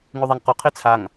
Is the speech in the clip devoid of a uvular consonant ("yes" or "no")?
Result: no